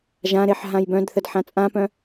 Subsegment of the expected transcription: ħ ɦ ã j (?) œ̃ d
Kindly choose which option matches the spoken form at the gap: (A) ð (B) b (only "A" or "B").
B